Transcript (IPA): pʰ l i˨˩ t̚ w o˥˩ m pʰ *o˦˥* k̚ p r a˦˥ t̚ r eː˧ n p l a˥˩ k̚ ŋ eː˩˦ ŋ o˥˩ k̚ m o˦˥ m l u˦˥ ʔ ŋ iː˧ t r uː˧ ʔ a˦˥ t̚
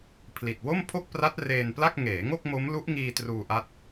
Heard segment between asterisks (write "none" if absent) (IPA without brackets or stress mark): o˥˩